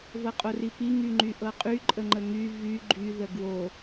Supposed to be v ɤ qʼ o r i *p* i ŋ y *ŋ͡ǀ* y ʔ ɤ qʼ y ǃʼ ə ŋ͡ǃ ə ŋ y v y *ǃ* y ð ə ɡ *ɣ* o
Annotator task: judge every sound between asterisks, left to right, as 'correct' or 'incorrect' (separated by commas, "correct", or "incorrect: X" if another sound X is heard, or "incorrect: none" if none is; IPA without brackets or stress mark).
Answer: correct, incorrect: ŋ͡ǃ, incorrect: ɡ͡ǃ, incorrect: w